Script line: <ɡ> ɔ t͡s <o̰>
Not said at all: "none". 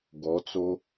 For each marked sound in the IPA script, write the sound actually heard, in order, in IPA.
ɡ, o

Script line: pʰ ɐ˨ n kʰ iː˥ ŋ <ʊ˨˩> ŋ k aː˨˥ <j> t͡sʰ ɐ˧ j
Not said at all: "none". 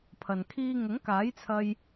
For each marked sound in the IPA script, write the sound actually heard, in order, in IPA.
ʊ˨˥, j

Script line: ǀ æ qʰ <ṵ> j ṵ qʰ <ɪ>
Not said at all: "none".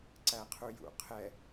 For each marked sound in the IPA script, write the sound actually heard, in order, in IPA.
u, ɛ

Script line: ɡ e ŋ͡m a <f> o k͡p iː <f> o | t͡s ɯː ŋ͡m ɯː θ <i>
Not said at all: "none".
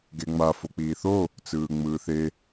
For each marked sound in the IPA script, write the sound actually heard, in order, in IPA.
f, θ, e

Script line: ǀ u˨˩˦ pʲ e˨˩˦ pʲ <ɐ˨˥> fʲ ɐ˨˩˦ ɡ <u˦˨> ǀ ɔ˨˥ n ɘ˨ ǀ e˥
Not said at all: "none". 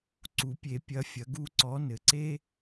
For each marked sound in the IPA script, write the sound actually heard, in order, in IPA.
ɐ˨˥, u˦˨

